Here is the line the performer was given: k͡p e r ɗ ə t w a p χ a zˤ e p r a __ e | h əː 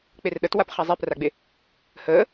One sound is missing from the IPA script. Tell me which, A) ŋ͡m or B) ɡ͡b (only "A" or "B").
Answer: B